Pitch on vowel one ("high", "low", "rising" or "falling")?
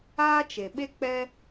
high